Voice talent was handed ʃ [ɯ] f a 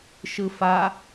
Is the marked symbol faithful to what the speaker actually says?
yes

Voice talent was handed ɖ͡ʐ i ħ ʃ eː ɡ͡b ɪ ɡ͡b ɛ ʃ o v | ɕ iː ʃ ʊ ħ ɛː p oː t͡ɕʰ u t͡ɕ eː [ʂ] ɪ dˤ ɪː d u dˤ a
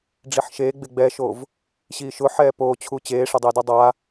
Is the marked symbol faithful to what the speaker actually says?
yes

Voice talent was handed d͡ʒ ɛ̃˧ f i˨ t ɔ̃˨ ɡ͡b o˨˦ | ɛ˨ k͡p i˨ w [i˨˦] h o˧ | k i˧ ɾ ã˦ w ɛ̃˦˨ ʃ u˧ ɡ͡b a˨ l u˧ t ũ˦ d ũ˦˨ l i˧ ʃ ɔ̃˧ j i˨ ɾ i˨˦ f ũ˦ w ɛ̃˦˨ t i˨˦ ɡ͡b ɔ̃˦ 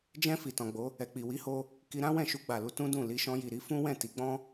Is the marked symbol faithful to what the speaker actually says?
yes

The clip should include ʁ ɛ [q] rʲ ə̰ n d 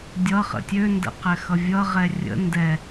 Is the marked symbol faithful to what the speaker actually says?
no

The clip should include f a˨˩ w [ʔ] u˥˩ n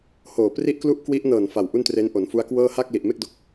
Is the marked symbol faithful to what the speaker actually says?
yes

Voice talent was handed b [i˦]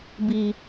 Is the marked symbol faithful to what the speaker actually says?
no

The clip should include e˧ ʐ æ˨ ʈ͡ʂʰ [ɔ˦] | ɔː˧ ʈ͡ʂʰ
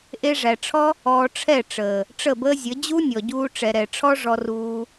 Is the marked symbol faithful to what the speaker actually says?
yes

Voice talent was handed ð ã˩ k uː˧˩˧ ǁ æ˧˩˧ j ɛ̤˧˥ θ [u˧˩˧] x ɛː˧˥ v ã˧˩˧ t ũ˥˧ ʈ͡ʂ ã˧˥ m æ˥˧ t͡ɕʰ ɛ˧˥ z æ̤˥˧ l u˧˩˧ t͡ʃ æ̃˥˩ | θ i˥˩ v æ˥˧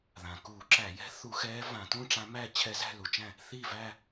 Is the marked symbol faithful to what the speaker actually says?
yes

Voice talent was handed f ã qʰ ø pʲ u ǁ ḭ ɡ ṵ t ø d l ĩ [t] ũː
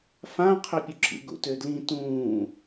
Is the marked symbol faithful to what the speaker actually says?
yes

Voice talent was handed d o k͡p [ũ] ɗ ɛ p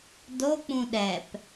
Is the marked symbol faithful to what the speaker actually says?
yes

